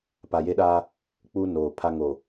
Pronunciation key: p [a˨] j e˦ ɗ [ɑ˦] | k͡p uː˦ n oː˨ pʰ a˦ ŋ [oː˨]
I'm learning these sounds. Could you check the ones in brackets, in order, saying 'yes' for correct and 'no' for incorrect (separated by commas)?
yes, no, no